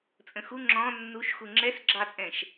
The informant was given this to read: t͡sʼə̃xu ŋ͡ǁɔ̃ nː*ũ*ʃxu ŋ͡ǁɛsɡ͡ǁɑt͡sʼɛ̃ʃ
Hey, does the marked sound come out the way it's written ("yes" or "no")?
no